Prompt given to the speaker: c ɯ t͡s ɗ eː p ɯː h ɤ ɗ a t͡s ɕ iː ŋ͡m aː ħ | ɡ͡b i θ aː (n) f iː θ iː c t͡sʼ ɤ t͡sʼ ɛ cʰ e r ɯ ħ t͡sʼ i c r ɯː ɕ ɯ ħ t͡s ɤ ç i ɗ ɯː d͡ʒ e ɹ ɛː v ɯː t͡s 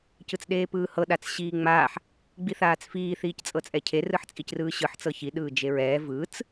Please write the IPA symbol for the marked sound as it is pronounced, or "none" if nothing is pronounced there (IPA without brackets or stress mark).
t͡s